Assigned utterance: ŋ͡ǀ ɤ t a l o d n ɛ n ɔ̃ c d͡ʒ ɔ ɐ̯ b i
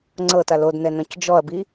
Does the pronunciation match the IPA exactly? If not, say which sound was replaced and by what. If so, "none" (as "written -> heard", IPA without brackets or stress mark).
none